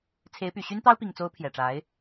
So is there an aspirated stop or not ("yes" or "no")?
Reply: yes